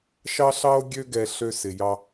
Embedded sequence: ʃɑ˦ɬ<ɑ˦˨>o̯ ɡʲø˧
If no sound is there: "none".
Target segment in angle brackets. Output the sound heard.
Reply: ɑ˦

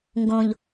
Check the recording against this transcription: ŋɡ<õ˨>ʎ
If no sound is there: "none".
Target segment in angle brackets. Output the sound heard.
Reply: õ˨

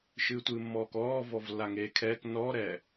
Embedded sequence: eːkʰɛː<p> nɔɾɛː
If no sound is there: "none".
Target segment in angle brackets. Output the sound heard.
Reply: k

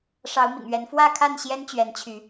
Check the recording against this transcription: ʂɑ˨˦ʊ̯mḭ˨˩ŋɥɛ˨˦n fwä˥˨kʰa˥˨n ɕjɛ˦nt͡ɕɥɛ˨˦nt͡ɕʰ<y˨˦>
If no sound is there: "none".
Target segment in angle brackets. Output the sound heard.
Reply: y˨˦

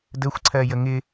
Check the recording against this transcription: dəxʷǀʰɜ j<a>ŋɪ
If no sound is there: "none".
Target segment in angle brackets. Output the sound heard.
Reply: ə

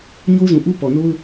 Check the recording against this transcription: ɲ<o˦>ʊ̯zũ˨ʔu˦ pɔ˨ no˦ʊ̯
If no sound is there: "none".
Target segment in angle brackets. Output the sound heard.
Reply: o˦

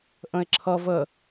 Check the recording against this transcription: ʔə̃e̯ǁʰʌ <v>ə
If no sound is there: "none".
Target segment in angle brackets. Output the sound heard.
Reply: v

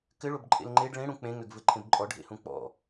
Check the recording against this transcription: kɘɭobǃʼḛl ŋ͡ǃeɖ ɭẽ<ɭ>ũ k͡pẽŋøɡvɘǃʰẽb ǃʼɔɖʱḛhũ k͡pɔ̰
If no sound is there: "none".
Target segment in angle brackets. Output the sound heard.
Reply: ɽ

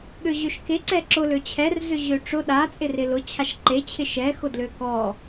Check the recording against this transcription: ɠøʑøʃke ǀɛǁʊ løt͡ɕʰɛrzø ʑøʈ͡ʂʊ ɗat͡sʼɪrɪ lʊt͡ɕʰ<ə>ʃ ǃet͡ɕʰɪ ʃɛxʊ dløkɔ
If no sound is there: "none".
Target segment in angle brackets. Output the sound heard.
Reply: a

